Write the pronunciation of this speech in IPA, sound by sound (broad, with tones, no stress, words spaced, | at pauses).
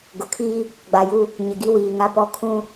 ɡʊ˨kʰiː˦ | ɡ͡ba˨ju˦ | ɲɪ˨ɡi˦wiː˨ ŋa˦pɔ˦ kʰũ˦